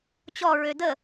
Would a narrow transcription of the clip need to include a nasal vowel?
no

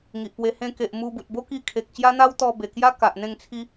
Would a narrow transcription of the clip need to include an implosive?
no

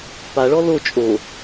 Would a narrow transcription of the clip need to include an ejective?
yes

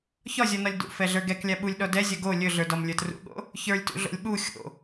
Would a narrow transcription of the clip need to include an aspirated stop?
no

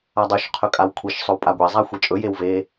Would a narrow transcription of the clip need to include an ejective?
yes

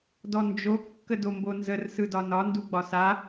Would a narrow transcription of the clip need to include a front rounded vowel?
no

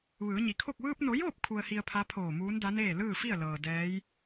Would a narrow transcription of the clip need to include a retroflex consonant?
no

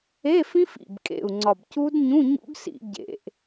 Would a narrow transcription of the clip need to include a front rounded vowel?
no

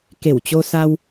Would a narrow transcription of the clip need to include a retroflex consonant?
no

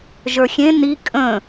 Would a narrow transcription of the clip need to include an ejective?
yes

